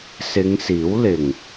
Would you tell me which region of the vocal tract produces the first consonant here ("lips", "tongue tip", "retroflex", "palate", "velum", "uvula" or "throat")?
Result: tongue tip